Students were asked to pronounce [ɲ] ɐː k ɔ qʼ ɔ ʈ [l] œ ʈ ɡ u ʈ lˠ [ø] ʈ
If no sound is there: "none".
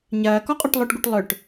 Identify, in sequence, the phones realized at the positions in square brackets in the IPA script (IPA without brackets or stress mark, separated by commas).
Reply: ɲ, lˠ, œ